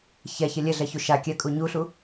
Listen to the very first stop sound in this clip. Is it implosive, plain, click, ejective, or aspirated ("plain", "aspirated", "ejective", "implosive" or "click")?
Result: plain